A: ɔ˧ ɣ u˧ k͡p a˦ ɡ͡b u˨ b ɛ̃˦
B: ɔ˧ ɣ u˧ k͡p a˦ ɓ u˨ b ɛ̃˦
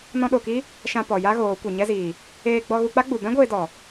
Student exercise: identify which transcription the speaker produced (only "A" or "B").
A